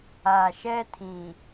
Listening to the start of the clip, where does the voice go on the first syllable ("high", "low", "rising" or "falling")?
low